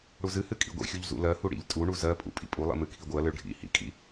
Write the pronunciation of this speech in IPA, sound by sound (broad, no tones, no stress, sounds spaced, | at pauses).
ɽ u z ɨ h ɨ kʼ ḭ ɡʷ ḭ xʲ u ʎ z ṵ l ɜ h u ɽ ḭ ʎ tʼ u ɳ u z ɜ pʼ ṵ pʼ ḭ pʼ u lˠ ḭ m ɨ kʰ i ɡʷ ɨ ɐ̯ l ɨ ɭ ɖʱ ḭ h ḭ kʼ ḭ